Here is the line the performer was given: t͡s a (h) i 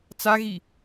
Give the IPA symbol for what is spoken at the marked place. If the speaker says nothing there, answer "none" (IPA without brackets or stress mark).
ɣ